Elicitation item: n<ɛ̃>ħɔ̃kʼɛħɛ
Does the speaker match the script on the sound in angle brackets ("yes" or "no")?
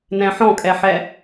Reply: yes